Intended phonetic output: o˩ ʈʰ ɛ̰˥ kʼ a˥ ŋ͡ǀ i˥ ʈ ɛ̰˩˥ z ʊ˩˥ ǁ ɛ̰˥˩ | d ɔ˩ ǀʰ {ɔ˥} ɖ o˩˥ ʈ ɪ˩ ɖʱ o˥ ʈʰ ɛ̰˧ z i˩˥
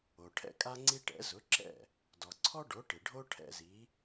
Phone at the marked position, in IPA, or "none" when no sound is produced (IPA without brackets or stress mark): ɔ˥